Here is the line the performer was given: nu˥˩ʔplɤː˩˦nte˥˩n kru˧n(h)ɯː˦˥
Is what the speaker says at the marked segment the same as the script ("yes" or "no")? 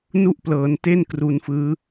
no